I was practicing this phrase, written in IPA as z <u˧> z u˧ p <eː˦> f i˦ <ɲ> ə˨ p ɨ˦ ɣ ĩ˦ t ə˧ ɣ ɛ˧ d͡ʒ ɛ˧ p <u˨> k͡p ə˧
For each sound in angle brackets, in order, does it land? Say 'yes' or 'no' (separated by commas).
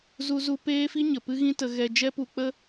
yes, yes, yes, yes